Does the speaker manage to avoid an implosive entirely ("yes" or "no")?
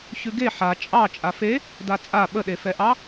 no